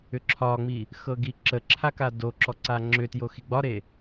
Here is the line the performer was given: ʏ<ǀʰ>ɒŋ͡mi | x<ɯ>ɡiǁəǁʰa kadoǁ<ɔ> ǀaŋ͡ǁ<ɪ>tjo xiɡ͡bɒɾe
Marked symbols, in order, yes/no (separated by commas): no, no, yes, no